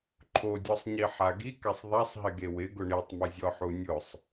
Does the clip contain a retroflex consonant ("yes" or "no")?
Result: yes